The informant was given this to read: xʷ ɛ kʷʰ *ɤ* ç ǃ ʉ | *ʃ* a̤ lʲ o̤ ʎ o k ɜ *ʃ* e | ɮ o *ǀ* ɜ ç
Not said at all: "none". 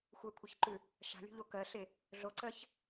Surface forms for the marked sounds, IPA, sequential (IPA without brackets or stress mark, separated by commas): ɤ, ʃ, ɬ, ǀ